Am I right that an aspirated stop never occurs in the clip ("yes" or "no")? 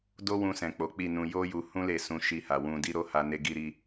yes